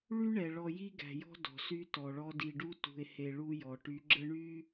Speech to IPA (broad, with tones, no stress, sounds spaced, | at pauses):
ɭ y˦ ɳ ɛ˨ ɭ ɔ˨ j i˦ ɡ æ̤˨ j ɔ̤˦ d ɔ̤˨ s y˦ t ɔ˨ ɭ ɔ˦ d i˨ ɖ u˦ t ṳ˨ e̯ h e˨ ɭ u˦ j ɔ˨ ʈ y˨˦ ɡ͡ǁ ə˦ ɳ y˦